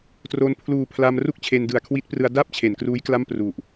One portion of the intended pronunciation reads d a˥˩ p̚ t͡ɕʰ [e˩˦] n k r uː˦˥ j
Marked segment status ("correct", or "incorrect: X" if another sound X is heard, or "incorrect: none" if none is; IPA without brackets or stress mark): correct